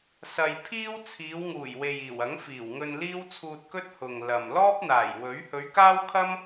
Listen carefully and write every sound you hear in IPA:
sɐ˧j pʰiː˥w t͡sʰiː˨˧wŋuː˨˩j we˨jiː˨˩wɐ˨˥ŋ fiː˨˩wŋɵ˧n liː˥wt͡sʰuː˧t̚kɵ˥t̚ hʊ˨ŋ lɐ˨m lɔː˥p̚n̪aː˨˩j wɵ˨˥ɥ hɵ˨˧ɥkaː˥wkʰɐ˥m

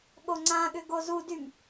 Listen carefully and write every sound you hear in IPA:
ɠoŋ͡ǀãɠʏ ɡozudym

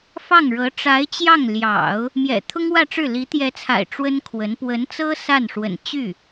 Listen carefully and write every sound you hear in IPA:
fɑ˥˩ŋɻɤ˧˥ ʈ͡ʂa˧˥ɪ̯t͡ɕjɑ˥˩ŋljɑ̰˨˩˦ʊ̯ | mjɛ̰˨˩t̪ʰʊ˥ŋwä˥˧ʈ͡ʂɻ̩˥˩ li˧˥t̪jɛ˧˥t͡sʰa̰˨˩ɪ̯ ʈ͡ʂwə˥nkʰwə˧˥n pwə˧˥nt͡sɤ˥ sa˥˩n ʂwə̰˨˩n t͡ɕy˥˩

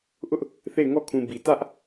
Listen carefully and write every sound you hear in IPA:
ʔʊ˦ʔ | θe˦˨ɪ̯ŋɔ˦˨kʰũ˨ bi˨ tä˦ʔ

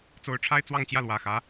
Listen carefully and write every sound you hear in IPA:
t͡so˧˥ʊ̯ʈ͡ʂʰa˥ɪ̯ t͡swɑ˥˧ŋt͡ɕjä˥˩lwä˨˩xä˧˥

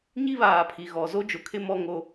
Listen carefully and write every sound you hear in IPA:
ɲi˦βaː˨pʰi˨ ɣɔ˨zo˦d͡ʒʊ˨kʰɪ˦ mɔ˦ŋo˦

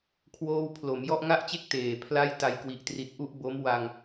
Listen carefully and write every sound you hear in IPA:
kʰwoː˥˩w pʰlo˩˦m jɔ˥˩ʔŋa˥˩ʔt͡ɕe˥˩k̚ teː˨˩pʰla˥˩j ta˧jkwi˨˩ʔtri˨˩t̚ʔu˥˩ʔ bo˦˥mwa˧ŋ

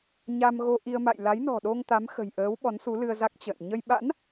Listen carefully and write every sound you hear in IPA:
ɲa˧m ɣo˧ ʔi˧ə̯ma̰˧˨j la˨˦jnɔ̤˨˩ɗo˧ŋ t̪a˨˦mxə̤˨˩jʔəː˨˦w ɓɔ˨˦nsu˨˦lɨ˧ə̯za˦˥k̚ t͡ɕə̰ː˧˨n ɲə˧j ɓa̰˧˥n

